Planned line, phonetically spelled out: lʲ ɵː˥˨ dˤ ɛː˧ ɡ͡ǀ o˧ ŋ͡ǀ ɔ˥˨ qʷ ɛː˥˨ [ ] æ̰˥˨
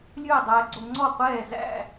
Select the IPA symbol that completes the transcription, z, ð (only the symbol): z